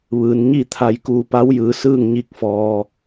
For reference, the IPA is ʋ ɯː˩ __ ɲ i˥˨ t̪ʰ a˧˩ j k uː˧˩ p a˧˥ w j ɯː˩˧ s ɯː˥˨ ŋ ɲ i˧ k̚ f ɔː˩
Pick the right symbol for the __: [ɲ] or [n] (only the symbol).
n